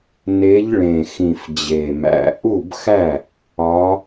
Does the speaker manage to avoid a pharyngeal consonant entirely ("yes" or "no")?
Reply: yes